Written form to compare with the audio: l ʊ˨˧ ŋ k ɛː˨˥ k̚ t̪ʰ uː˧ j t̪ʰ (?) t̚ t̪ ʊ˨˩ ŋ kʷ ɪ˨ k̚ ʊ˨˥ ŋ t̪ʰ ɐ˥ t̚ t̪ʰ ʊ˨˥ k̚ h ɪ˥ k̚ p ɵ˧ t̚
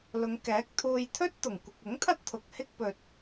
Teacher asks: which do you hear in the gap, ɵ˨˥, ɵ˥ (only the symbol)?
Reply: ɵ˥